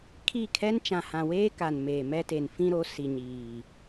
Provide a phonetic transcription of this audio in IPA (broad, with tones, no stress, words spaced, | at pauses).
kʰi˦˨kʰɛ˦n t͡ʃã˨hã˨weː˦ ka˨nmeː˨mɛ˦te˨n fĩ˦ɾo˨˦ si˨ɲiː˨